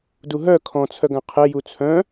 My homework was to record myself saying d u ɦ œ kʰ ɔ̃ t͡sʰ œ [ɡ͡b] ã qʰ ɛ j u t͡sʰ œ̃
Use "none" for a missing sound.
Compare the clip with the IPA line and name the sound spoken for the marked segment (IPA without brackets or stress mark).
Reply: ɡ